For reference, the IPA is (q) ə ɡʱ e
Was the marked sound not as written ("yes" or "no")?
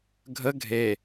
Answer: yes